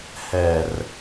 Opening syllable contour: low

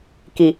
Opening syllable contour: low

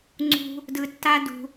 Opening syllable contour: high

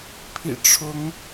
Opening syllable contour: low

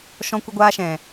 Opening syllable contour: high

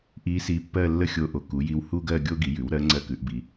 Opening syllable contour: rising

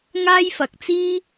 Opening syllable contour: high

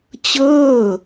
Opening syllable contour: falling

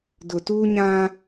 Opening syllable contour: low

